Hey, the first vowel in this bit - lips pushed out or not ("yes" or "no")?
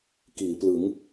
no